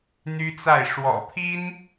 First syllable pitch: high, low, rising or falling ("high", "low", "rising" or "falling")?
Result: high